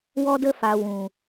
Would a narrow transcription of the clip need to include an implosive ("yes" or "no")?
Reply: no